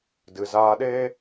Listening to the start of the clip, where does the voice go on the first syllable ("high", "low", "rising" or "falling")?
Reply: low